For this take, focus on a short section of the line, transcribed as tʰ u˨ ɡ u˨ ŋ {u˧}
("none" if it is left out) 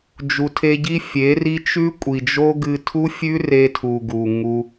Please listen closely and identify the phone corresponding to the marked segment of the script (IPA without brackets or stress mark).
u˧